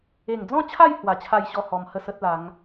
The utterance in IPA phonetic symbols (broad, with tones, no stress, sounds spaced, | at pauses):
e˨˩ ŋ d͡z ɔ̃˥˧ t͡ɕʰ a˥˧ j h w a˧ t͡ɕʰ a˥˧ j ɕ ɔ˥˧ h ɔ˧ m h ə˥˧ s ə˦ t̚ l a˨˦ ŋ